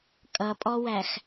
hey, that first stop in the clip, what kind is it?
ejective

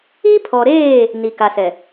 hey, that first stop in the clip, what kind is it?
aspirated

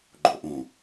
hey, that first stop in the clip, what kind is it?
click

